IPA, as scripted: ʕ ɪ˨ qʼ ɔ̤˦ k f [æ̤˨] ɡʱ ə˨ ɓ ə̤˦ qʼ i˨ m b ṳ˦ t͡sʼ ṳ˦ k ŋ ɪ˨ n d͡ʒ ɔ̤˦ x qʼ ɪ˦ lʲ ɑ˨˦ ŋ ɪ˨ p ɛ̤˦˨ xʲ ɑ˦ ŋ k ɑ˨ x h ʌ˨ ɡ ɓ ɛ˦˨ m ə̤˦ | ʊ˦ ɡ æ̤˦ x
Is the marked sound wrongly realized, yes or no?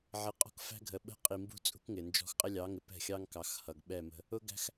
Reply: yes